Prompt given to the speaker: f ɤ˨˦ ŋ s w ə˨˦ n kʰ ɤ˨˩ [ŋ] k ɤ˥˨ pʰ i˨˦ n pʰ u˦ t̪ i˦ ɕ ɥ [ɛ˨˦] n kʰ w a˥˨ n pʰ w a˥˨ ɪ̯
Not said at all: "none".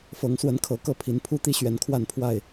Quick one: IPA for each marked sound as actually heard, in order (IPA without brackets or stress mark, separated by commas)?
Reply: none, ɛ˨˦